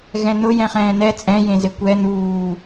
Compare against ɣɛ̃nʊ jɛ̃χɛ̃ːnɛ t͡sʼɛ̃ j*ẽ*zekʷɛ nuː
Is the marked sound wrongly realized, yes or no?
no